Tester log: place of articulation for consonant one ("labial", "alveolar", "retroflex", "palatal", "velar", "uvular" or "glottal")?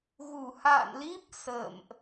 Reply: velar